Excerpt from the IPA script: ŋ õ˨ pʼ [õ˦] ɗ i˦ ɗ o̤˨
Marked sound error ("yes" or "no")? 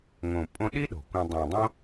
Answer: yes